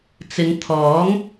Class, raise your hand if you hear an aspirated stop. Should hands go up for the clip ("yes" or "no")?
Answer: yes